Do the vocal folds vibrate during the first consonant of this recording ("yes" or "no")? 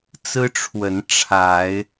no